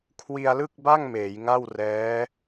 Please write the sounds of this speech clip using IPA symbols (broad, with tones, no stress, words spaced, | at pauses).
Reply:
kʰwi˧a̯lɯ˥˩k̚ba˥˩ŋ meː˩˦jŋa˥˩w rɛː˦˥